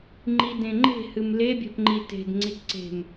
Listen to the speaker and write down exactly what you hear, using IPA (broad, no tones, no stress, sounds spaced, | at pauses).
ŋ͡ǃ i d ẽ ŋ͡ǃ e̤ h ɨ m l e bʲ ɛ̤ p ŋ͡ǃ i t e̤ d ŋ͡ǀ i t ǀ e̤ m